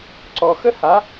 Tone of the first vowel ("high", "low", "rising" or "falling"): low